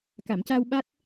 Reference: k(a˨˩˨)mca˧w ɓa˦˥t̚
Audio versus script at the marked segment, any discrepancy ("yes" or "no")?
no